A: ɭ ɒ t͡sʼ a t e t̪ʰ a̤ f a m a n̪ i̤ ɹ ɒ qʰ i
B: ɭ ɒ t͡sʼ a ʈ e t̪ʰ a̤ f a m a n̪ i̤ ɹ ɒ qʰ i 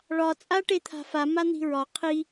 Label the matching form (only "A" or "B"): B